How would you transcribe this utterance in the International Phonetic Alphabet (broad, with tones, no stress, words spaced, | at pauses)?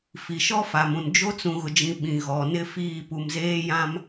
fi˨ʃɔ˦fa˨mũ˨n d͡ʒo˦t͡sũ˨ɣʊ˨d͡ʒĩ˨ ɓĩ˨ ɣɔ˨nɪ˦ fiː˦˨pu˨mzeː˦ jã˦m